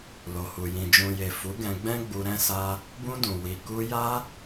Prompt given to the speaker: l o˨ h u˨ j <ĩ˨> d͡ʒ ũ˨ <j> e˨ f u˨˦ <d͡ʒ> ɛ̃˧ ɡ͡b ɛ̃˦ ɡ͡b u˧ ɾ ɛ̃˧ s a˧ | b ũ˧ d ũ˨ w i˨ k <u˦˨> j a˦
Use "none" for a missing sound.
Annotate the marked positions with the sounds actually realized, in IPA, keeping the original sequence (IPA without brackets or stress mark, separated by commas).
ĩ˨, j, ɡ, u˧